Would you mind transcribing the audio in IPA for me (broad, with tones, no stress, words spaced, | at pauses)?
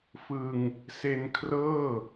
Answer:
fɯ˧ŋ | se˧nkʰrɤː˥˩